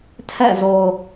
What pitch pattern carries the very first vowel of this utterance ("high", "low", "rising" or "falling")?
falling